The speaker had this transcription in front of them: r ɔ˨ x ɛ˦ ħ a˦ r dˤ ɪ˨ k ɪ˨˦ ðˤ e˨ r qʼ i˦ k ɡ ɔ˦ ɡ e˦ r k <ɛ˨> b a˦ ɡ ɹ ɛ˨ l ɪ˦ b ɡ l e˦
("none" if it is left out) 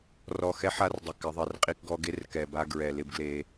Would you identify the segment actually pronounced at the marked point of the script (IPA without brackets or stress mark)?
ɛ˨